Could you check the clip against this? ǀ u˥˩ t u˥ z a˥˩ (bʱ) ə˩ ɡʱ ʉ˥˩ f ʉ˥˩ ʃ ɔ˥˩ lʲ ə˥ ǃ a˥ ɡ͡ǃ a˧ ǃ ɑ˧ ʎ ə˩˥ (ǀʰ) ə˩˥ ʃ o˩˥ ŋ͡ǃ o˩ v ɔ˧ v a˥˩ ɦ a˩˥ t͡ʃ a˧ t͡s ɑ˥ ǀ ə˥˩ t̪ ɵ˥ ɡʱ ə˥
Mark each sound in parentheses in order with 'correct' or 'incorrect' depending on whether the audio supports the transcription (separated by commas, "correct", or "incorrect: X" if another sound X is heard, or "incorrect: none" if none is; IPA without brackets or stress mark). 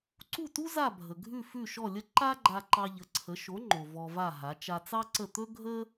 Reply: correct, correct